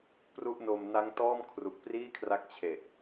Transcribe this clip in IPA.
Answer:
p r u˥˩ ʔ n o˧ m n a˦˥ ŋ t ɔː˥˩ m kʰ r u˨˩ k̚ p r iː˥˩ kʰ r a˦˥ k̚ t͡ɕʰ e˨˩ ʔ

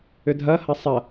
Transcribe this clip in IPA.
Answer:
ʏ dʱ ɐ h ɐ sˤ ɐ

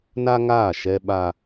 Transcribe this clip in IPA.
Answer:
n a˦ ŋ aː˦˨ ʃ ɛ˦ ɓ a˦

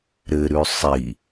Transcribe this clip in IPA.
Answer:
ɾ ɘ ɾ ʉ sˤ i

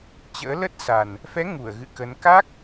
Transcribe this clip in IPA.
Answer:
t͡ɕ ə̰ː˧˥ l ə˦˥ t̚ s a˨˩ n | f ɛ˨˦ ŋ u˧˩ ə̯ ɣ ɨ̰˧˨ k ə˨˦ n k a˦˥ k̚

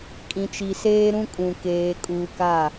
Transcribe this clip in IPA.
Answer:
kʼ ĩ˨ t͡ʃ i˨ s eː˦ ɾ ũ˦ kʼ ũ˨ k eː˨ kʼ uː˨ k a˦˨

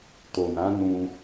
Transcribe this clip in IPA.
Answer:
t o˨ n ã˨˦ n ũ˧

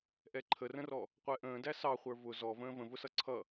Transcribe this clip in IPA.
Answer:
ʔ ɛ ǃʰ ə r ə̃ r ɔ | qʷ ɛ ʔ ə̃ː d æ s ɑ χʷ ə˞ v ʊ z ɔ v ə̃ː v ə̃ v ʊ s ʌ ǀʰ ʌ

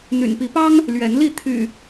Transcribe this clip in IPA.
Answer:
n̪ y̰˨˩ n p i˨˦ p ɑ˦ ŋ | l ɥ ɛ˨˦ n l i˥˨ t̪ʰ y̰˨˩

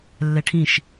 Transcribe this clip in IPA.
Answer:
lː ɛ ʈʰ ĩ ʃ

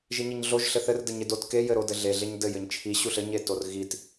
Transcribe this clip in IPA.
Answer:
ʒ i ɲ i ɲ ɮ o ʒ ɬ ɘ θ ɘ r d ɘ ɲ e d o t k e j ɘ ɾ o d ɘ ɮ e ɮ e ɲ d ɘ j ɘ ɲ t͡ʃʰ i ɕ u ɬ ɘ ɲ e t o r ɣ i t

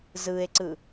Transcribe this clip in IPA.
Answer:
z ɯ e̯ ǀ ɯ

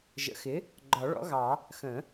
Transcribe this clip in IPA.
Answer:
ʒ ə̰˩˥ x ɪ˩˥ | ɡ͡ǃ ɒ˨˩˦ ɭ ɔ̰˩˥ ɣ ɑ˨˩˦ | x ə̃˨˩˦

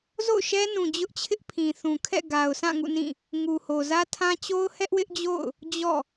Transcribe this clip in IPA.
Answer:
z o̰˦˨ ʊ̯ ʃ ɛ˦ n ũ˨ d͡ʑ ʊ˦ ʔ t͡ɕʰ ɪ˦ ʔ pʰ ĩ˨ θ ũ˨ kʰ ɛ̰˦˨ ɡ a˨ ʊ̯ sʰ ã˦˨ ŋ ṵ˦˨ n ĩ˦˨ | ŋ u˨ h o˨ z ä˦ tʰ ã˦ t͡ɕ o˦ ʊ̯ h ɛ˦ ʔ w ɪ˦ ʔ d͡ʑ o̰˦˨ ʊ̯ | d͡ʑ ɔ̰˦˨

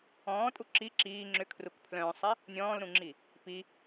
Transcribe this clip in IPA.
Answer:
ɔ̃ː tʼ u ǁ i ǁ iː ŋ͡ǁ ʏ kʰ r u k pʰ l œ̃ː sˤ e | nʲ ɔ̃ː l ɾ ũ ŋ͡ǁ i | p i

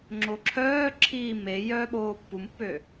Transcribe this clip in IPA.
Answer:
ŋ͡ǁ o ǁʰ œː ǁʰ iː m e j œː ɓ oː pː u m pː ø

